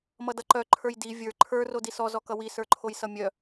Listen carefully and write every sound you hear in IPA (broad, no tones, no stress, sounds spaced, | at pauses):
m ʌ d ʌ ǃ œ ǃʰ ə˞ j d i vʲ ə˞ ǃʰ ə˞ r o d i s ɔ z ɔ k ʌ w i s ə˞ ǃʰ o j s ʌ mʲ œ